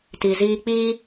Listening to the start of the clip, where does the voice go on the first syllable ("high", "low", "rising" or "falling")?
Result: low